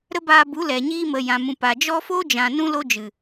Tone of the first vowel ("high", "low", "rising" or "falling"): high